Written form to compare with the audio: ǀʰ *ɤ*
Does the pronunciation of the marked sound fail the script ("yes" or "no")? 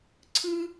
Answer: yes